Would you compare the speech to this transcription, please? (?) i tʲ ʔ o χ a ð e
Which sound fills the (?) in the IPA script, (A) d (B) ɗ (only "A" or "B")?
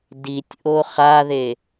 A